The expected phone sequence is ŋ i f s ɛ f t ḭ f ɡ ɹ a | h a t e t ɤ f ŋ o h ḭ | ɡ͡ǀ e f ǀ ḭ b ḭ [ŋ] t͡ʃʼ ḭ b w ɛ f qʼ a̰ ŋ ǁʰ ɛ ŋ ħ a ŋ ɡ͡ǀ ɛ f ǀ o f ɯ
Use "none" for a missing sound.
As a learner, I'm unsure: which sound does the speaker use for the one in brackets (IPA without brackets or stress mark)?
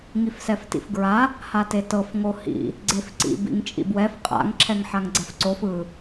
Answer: ŋ